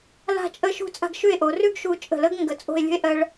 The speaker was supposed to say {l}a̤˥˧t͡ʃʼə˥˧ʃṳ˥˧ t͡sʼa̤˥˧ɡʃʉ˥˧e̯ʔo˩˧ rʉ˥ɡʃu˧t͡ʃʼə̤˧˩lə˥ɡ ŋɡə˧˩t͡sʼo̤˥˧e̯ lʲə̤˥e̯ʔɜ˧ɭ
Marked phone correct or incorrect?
correct